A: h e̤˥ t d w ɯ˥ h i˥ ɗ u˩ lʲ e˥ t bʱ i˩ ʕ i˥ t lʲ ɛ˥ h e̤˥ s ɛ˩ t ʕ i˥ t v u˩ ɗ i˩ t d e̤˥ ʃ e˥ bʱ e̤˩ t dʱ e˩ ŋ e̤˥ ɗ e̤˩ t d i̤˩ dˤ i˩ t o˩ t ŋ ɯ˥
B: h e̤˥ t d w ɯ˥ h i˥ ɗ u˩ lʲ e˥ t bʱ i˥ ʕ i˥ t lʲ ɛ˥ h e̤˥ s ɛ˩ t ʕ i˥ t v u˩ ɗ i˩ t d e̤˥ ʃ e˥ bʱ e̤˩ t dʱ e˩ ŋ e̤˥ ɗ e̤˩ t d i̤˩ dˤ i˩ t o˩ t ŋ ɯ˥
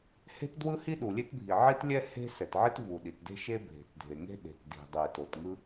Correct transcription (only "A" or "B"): A